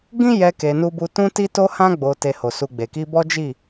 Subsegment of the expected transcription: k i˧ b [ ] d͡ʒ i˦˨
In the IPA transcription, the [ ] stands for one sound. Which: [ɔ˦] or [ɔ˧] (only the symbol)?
ɔ˦